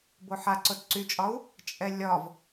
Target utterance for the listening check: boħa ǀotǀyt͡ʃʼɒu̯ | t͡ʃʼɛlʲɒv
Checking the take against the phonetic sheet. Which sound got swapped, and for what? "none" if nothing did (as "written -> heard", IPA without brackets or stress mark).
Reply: none